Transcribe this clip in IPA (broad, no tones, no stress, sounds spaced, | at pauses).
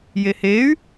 j e h e y̯